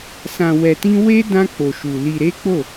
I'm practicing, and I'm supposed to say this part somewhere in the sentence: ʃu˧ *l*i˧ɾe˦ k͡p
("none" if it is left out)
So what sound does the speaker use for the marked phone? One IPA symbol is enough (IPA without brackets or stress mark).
l